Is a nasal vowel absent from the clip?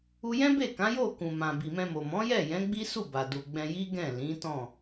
no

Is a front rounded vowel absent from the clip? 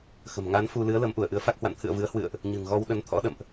yes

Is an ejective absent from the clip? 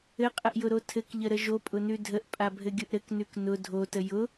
no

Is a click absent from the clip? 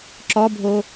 no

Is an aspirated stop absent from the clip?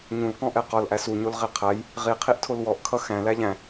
no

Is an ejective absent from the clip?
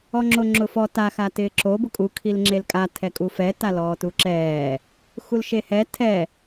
no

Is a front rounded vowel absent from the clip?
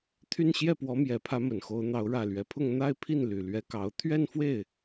no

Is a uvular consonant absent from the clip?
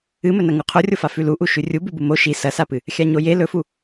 no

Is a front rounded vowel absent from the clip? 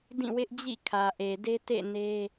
yes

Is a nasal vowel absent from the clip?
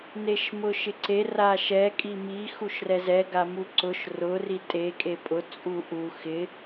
yes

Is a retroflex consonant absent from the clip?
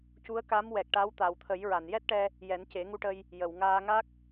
no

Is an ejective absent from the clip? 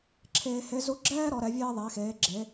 yes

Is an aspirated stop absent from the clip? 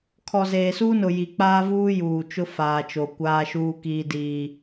no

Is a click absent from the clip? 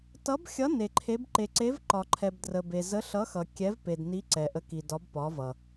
no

